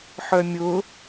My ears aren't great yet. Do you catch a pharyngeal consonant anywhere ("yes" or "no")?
yes